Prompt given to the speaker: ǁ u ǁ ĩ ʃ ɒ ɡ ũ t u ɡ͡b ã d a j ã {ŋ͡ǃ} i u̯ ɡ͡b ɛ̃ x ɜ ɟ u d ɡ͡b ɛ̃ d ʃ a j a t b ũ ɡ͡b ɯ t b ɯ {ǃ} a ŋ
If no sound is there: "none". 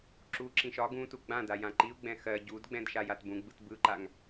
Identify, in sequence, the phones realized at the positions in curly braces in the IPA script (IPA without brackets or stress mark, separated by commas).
ǃ, ǃ